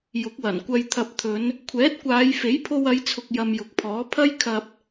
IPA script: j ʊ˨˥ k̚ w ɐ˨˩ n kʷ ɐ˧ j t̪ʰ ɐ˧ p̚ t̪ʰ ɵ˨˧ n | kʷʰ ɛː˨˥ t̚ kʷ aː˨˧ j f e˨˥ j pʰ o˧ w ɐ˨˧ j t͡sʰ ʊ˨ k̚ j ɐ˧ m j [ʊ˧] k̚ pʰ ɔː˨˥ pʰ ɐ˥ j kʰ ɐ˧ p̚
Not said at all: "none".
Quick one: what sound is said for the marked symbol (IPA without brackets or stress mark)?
ʊ˨